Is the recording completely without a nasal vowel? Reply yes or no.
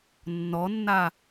yes